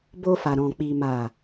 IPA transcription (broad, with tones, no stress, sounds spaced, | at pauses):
b o˧ f a˨ ɾ ɔ̃˨ k͡p i˨ m a˨